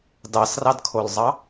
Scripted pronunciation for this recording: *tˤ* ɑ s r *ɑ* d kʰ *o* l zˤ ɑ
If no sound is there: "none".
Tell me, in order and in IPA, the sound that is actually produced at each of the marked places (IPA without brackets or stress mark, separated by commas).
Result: d, ɑ, o